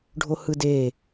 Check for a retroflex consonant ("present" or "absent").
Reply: present